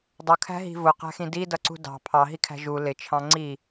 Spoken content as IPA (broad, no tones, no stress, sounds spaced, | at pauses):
dˤ ʊ kʰ æ̤ ɦ i̤ v ʊ q æ̤ x ĩ d i d ʌ ǀ ṳ d ɑ̤ pʰ ɑ ɦ i kʰ æ̤ ʒ u l ɪ t͡ʃʰ ɑ̃ ŋ͡ǀ i